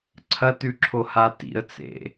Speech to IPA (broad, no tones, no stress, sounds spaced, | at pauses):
ǀʰ ɐ t ʉ ǁʰ o h a t ḭ ə̯ t͡s ḛ